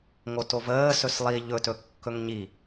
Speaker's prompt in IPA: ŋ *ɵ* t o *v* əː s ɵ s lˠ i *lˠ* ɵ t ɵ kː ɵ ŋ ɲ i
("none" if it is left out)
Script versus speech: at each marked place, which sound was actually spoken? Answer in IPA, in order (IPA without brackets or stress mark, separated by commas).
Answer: o, v, ʎ